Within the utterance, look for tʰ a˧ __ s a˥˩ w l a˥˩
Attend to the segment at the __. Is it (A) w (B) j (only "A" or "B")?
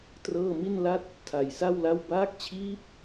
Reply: B